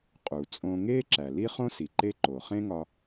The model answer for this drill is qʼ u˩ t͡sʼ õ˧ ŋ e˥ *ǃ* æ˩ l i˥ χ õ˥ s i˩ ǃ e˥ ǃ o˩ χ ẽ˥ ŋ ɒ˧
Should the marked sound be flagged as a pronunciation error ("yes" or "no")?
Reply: yes